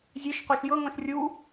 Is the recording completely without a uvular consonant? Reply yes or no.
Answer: no